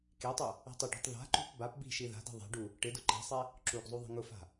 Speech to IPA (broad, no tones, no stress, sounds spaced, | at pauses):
k e tˤ u | ɛ̤ tˤ ʊ ɖ ɔ̤ tˤ ð a̤ ǃ ṳ p b a p b i̤ ʃ i ð a̤ d i̤ ðˤ ɛ̤ ɖ u | ʈ ɪ d ʊ ǃ ɛ̤ sˤ ɛ | ǁ u ɡ zˤ u ðˤ i̤ ŋ ʊ f a̤